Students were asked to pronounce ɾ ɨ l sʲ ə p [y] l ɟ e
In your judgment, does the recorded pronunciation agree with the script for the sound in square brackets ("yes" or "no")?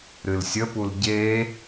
no